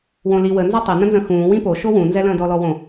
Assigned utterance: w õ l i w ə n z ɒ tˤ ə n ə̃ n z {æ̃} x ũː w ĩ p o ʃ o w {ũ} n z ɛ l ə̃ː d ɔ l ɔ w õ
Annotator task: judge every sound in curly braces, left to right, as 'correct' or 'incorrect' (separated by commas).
incorrect, correct